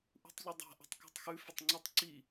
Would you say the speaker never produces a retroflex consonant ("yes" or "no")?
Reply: yes